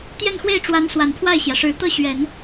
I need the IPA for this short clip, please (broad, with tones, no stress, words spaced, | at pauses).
t̪jɛ˥˧nxwe˥˩ɪ̯ʈ͡ʂwa˧˥n swa˨˩npʰwa˥˩ɪ̯ɕjä˩ʂɻ̩˧˥ t̪ɤ˥˩ɕɥɛ˨˩˦n